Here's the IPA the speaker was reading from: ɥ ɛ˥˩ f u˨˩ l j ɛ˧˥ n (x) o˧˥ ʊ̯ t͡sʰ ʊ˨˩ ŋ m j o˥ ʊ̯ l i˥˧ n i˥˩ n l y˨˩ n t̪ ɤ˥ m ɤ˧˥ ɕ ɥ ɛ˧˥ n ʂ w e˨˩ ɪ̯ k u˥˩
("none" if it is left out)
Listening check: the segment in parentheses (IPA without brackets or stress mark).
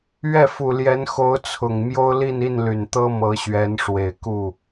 x